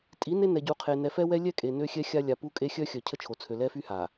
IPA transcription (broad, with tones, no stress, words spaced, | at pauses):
tʼi˨˦ne˦ nɛ˨ɟu˨qʰe˨ nɛ˨fɛ˦ wɛ˦lʲɛ˦kʼe˨ nø˦xʲɛ˦xʲa˦ lʲa˨pu˦kʼe˦ xʲœ˦xʲœ˨ cʰə˦t͡ʃʰo˨t͡sʰø˨lɛ˦ fy˦ha˨